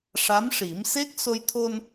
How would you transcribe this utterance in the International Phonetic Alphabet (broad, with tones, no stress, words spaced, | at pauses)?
ʂa˧˥mʂi˨˩˦m se˦˥k̚so˧jt̪ʰo˧n